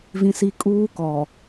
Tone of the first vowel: high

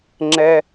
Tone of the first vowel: high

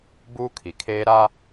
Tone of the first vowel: high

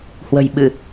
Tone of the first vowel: low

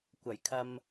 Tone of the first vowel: low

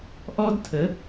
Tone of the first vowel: high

